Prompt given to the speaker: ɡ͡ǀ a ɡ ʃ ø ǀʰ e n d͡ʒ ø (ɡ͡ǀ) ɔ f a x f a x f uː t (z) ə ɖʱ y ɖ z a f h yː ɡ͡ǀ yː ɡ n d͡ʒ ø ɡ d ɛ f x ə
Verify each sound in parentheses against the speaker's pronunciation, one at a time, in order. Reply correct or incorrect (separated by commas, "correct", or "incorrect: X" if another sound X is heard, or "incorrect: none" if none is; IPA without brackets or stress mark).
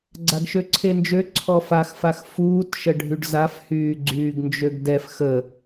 incorrect: ǀʰ, incorrect: ʃ